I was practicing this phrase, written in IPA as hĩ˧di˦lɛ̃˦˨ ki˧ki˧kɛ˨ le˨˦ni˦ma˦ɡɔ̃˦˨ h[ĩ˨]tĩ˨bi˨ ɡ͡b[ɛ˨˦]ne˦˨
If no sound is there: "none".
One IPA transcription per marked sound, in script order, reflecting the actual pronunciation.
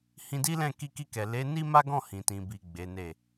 ĩ˨, e˨˦

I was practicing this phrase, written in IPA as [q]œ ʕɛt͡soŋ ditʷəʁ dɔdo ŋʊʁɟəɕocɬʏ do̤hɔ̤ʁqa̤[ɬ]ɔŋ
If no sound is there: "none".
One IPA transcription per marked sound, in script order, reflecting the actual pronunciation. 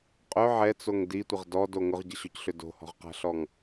qʼ, ɬ

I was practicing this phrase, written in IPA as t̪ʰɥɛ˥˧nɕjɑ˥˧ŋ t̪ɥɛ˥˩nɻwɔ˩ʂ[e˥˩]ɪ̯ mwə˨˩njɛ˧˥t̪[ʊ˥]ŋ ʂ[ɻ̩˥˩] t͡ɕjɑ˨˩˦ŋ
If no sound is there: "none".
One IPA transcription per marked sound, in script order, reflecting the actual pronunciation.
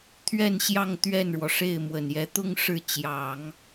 e˥˩, ʊ˥, ɻ̩˥˩

